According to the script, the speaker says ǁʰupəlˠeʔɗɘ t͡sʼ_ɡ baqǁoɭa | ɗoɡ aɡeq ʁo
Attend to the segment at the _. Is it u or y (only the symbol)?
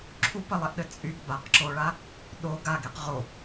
y